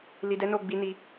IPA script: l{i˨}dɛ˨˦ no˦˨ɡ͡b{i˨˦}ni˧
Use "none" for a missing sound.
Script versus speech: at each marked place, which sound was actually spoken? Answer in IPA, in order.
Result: i˨, i˨˦

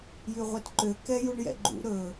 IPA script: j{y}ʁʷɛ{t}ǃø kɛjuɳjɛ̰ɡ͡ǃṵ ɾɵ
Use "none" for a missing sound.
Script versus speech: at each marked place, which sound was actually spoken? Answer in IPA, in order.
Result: y, t

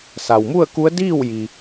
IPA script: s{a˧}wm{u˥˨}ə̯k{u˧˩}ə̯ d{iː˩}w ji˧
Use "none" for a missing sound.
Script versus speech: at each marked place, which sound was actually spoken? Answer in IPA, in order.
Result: a˩, u˥˨, u˧˥, iː˥˨

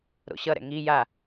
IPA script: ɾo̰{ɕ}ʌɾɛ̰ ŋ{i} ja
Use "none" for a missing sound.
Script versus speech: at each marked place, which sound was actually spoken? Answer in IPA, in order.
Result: ɕ, i

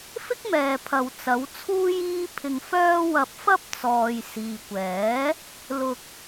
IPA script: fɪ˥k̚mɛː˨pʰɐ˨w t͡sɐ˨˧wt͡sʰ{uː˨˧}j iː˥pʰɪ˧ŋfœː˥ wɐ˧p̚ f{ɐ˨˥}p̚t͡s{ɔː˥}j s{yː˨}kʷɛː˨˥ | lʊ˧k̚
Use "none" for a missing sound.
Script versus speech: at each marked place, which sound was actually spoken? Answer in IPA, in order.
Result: uː˥, ɐ˥, ɔː˨, iː˨

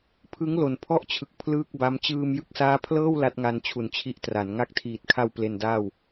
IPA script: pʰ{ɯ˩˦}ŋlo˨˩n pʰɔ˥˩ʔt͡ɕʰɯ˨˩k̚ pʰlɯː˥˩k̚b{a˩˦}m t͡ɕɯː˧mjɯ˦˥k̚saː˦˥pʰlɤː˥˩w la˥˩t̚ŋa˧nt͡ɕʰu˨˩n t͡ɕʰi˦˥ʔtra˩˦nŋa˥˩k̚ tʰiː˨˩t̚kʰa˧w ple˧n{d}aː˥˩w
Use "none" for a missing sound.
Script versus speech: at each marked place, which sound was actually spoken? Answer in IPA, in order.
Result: ɯ˦˥, a˦˥, d

